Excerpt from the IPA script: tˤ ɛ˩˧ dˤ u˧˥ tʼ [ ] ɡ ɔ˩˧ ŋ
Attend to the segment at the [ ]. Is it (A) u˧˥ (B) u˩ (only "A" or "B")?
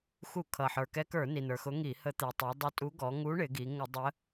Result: A